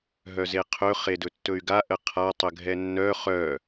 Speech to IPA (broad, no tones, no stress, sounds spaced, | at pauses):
ɦ œ z e qʰ ɵ χ e d ɵ tː ɵ y̯ ɡ a ʔ ə qʰ a tˤ ə ɡʱ ɛ nː œ χ œ